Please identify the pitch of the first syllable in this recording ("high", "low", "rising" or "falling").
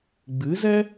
rising